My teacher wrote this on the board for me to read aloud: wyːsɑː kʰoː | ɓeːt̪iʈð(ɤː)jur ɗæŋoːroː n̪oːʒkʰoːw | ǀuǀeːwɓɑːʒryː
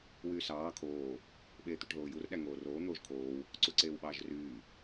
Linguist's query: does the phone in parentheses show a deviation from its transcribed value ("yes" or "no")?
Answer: yes